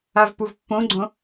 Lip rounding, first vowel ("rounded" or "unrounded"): unrounded